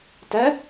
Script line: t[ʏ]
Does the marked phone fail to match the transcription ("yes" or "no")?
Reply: yes